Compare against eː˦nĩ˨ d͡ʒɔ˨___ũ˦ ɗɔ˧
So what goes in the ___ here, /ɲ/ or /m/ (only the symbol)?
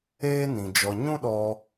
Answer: ɲ